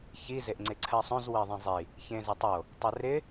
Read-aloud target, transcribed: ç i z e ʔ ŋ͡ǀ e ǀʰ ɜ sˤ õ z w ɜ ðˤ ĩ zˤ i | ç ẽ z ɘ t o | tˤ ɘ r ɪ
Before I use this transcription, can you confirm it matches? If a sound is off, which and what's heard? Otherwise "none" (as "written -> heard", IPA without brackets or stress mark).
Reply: t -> tˤ